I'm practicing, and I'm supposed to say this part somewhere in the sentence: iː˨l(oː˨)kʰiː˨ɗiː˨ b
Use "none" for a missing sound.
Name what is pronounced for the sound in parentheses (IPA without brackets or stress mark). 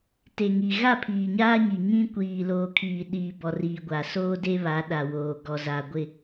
oː˨